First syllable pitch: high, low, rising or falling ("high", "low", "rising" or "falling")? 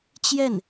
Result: falling